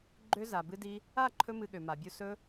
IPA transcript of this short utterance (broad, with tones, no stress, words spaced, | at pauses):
ɡ͡ǃø˧ za˨bɨ˧di˧ | a˦˨ǃʰɵ˧ mɨ˧ɠø˨ma˨bʲu˧ sɵ˧